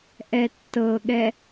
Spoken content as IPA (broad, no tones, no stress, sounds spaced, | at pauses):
ʔ ɛ tː ɤ ɠ ɛ